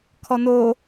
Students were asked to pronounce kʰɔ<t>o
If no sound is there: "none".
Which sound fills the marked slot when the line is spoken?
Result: n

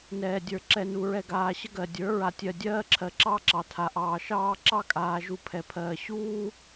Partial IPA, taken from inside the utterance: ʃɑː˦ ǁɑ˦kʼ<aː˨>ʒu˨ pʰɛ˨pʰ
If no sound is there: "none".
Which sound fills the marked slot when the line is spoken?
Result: aː˨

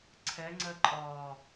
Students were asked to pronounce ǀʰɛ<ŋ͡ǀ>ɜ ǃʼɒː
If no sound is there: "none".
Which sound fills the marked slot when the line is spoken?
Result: ŋ͡ǀ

